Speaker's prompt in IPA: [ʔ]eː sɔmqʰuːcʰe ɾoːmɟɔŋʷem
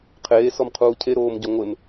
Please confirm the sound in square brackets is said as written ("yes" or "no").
no